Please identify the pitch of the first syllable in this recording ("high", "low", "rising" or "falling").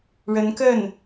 rising